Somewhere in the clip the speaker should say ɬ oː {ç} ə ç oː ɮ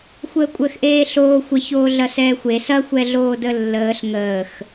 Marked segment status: incorrect: xʷ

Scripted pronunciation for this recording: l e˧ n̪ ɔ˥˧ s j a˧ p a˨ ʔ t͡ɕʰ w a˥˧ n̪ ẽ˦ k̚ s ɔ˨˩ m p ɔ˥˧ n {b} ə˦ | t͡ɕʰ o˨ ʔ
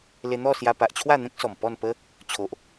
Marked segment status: incorrect: p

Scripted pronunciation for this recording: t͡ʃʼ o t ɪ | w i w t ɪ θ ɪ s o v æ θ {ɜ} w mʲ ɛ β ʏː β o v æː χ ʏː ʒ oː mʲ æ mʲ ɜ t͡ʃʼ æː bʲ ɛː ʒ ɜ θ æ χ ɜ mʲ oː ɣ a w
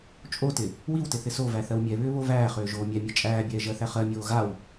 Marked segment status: correct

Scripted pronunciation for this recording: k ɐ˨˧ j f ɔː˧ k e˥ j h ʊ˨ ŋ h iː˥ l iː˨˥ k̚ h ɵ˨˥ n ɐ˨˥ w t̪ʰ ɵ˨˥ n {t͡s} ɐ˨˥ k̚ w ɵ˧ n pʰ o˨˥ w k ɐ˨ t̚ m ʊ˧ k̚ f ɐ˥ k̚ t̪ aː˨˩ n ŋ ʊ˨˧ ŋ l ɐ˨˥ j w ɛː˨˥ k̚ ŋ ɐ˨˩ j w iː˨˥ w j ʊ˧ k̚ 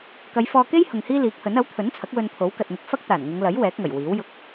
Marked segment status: incorrect: t͡sʰ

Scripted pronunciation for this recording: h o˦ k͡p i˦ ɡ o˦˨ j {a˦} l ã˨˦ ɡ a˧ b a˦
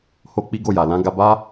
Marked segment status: incorrect: a˨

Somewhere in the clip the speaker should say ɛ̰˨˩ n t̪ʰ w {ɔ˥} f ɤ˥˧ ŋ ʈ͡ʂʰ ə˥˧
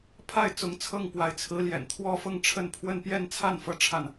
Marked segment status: correct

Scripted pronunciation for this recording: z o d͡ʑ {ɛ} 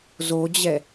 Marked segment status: correct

